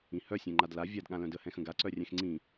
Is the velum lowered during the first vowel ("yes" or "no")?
yes